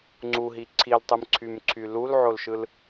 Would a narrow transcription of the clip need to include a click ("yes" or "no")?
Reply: yes